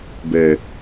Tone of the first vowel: low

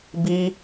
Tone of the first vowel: high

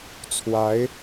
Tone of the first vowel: rising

